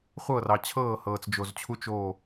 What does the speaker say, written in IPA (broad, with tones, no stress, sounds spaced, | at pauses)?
χʷ ɤ˦˨ r ɑ˨ t͡ɕʰ ɤː˦˨ h ɤː˨ t͡s d͡ʒ o˨ z t͡ɕʰ u˦ t͡ʃ oː˦˨